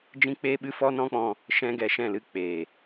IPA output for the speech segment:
d͡ʒ ĩ˦ k͡p eː˦ ɓ ɨ˦ f ɔ˦ n ɔ̃˦ k͡p ɔ̃˧ | ʃ ɛ̃˦ ɡ ɛ˧ ʃ ɛ̃˦˨ l ɨ˦ k͡p eː˨

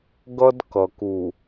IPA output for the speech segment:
ɡ ʌ˦ d k ʌ˨ k u˨

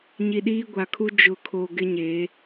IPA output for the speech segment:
ɲ i˨ ɗ iː˦ ɡʷ a˨ kʰ u˦ d͡ʒ ʊ˨ kʰ o˨ ɡ ɪ˦ ɲ e˨˦

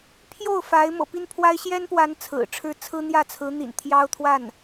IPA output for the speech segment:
pʰ j o˥˩ ʊ̯ f a˧˥ ɪ̯ m ɤ̰˨˩ p i˥˩ n pʰ w a˥ ɪ̯ ɕ j ɛ˥ n p w a˧˥ n t͡sʰ ɹ̩˨˩ ʈ͡ʂʰ ɻ̩˥˩ t͡sʰ ɹ̩˥ n̪ j ä˥˩ t͡sʰ ɹ̩˧˥ n̪ ḭ˨˩ n t̪ʰ j ɑ˥ ʊ̯ t̪ʰ w a˥˩ n

